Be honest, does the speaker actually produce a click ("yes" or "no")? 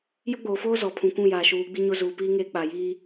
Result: no